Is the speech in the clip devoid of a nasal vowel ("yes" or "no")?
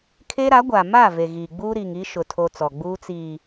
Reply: yes